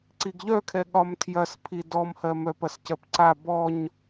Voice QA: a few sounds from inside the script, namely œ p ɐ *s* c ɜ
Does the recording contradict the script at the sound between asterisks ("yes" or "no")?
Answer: no